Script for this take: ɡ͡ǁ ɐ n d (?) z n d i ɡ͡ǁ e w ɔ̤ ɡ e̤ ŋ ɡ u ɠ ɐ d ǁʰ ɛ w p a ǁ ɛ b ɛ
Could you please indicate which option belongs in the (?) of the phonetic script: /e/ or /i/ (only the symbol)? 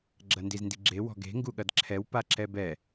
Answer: i